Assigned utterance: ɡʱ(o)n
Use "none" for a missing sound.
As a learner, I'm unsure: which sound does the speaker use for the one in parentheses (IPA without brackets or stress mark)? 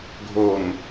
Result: o